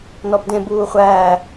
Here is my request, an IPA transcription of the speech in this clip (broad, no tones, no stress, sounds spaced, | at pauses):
n ɔ b d ẽ b uː χʷ æː